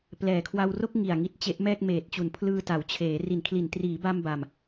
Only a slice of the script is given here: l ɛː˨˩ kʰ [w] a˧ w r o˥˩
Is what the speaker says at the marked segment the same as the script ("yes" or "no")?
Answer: yes